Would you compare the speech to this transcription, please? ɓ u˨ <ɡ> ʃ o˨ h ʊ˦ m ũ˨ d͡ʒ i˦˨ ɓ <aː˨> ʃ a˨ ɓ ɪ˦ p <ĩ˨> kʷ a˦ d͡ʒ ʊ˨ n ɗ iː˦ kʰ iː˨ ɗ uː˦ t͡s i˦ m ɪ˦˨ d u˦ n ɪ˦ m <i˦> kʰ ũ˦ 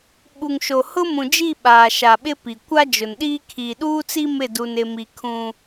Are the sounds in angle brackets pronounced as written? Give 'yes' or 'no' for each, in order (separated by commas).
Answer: no, yes, no, yes